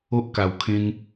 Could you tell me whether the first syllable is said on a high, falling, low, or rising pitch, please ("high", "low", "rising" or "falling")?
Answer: high